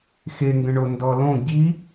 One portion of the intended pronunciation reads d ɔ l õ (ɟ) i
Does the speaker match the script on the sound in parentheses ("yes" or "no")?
yes